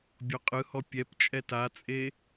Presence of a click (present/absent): absent